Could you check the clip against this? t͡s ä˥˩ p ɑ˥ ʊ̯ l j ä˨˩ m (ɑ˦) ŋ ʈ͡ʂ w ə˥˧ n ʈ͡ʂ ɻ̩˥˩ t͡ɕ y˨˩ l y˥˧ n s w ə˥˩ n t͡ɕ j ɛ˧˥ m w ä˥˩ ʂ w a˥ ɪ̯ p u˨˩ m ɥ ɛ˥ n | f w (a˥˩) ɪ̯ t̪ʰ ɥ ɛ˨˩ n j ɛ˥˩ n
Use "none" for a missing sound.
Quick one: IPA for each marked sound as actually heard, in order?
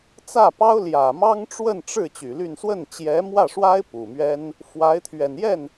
ɑ˥, a˧˥

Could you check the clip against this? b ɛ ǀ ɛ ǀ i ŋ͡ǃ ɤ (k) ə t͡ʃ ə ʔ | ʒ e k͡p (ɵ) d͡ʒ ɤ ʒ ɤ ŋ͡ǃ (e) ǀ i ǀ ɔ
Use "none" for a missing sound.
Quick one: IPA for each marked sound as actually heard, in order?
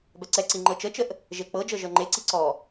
t͡ʃ, ɤ, e

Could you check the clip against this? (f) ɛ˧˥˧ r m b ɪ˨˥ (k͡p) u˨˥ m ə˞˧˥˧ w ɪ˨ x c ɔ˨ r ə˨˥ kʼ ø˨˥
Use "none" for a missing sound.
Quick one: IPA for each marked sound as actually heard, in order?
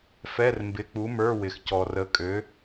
f, k͡p

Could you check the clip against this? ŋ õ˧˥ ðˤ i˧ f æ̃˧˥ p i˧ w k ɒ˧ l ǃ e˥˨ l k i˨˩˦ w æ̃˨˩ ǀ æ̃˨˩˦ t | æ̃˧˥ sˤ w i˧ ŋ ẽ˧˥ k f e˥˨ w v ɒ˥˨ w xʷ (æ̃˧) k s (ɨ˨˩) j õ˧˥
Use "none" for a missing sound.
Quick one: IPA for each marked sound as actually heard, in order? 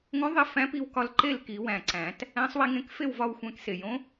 æ̃˧, e˨˩

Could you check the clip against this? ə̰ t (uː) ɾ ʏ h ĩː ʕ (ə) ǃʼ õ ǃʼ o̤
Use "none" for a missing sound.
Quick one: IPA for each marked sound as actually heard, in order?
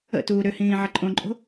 uː, ə

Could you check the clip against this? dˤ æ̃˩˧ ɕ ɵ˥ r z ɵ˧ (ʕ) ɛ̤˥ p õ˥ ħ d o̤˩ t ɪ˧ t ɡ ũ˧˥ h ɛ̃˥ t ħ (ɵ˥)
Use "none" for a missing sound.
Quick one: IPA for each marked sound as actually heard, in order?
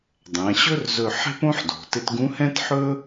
ħ, ɵ˥

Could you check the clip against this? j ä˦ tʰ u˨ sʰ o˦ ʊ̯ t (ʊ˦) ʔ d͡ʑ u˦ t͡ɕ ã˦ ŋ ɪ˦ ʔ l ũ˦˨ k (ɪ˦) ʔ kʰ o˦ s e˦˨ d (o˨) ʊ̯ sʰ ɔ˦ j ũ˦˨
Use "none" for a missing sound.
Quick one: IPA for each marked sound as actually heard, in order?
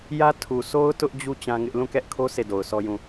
ʊ˦, ɛ˦, o˨

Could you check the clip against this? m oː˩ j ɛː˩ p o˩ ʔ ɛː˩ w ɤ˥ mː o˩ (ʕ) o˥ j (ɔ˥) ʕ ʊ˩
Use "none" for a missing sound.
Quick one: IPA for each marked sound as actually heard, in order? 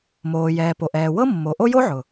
ʔ, o˥

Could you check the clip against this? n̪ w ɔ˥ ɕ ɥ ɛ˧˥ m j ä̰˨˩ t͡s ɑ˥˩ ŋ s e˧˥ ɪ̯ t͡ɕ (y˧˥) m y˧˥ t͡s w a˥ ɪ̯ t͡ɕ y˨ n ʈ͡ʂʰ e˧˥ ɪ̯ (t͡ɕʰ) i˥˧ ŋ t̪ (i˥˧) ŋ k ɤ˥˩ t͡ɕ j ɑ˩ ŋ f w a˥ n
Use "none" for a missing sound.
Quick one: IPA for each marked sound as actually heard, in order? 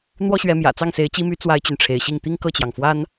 i˧˥, ɕ, i˥˧

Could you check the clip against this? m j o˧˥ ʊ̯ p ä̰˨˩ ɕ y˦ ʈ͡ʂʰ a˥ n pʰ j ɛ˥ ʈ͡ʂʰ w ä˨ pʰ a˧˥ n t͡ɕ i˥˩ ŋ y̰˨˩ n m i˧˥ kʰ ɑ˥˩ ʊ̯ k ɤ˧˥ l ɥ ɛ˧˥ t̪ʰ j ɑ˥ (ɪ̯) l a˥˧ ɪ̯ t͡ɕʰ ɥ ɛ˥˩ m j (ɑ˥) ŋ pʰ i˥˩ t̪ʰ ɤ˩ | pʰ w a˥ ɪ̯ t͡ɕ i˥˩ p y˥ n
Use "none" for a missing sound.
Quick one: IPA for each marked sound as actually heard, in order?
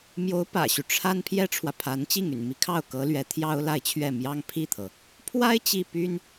ʊ̯, ɑ˥

